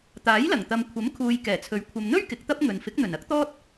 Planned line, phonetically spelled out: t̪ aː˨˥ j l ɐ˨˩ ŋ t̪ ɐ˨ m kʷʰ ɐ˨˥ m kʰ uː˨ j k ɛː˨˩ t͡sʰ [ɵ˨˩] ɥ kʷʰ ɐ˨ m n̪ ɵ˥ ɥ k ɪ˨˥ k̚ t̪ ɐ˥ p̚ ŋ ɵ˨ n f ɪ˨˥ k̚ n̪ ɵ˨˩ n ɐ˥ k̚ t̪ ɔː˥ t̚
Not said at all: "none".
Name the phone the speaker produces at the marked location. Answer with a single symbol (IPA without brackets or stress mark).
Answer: ɵ˨˥